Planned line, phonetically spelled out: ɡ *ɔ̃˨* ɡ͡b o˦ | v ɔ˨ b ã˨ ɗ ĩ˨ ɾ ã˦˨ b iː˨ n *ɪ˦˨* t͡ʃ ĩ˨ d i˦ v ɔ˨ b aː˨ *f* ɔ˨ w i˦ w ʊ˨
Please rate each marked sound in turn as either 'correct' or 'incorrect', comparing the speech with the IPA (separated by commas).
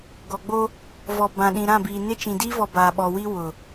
incorrect, incorrect, incorrect